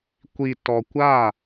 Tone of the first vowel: low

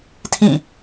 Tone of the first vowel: falling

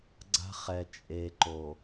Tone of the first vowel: high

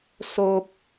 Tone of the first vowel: high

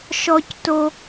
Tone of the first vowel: high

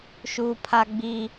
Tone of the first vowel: low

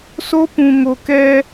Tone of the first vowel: high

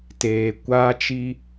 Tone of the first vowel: low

